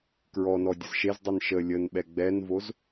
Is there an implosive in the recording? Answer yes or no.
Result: yes